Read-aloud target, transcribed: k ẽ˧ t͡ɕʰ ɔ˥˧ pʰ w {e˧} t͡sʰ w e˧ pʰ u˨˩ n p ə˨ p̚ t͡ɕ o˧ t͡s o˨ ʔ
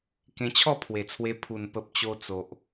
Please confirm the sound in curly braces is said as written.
no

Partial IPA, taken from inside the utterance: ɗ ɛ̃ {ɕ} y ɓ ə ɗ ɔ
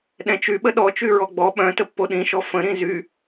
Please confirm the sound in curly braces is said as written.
no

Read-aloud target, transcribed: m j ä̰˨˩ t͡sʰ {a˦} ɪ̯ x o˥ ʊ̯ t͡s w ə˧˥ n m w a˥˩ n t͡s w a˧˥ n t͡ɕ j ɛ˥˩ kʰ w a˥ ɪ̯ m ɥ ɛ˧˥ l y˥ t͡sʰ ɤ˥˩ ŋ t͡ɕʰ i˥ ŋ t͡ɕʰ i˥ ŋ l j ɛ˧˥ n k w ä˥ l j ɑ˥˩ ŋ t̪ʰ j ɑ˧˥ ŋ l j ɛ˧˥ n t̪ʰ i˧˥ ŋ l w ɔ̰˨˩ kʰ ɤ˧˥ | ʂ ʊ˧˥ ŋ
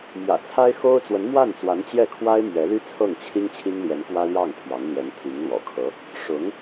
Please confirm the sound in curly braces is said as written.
no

